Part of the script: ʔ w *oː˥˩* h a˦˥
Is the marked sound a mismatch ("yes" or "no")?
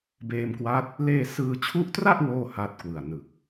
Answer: no